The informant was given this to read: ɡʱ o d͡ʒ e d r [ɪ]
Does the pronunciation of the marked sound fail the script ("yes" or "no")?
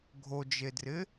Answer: no